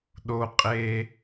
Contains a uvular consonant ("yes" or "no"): yes